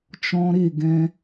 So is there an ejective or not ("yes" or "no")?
no